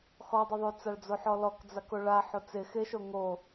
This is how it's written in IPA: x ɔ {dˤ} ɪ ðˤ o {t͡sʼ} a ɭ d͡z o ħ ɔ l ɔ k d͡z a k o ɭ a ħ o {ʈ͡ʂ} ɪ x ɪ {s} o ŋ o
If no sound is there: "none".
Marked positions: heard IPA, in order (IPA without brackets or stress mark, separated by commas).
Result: dˤ, t͡s, t͡s, ʃ